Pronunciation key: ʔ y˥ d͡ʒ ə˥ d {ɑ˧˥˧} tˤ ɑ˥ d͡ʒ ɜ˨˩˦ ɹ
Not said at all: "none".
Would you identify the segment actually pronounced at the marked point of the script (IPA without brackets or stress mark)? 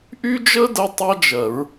ə˧˥˧